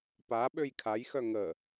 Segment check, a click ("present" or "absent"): absent